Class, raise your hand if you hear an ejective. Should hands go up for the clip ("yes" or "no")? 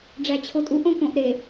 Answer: yes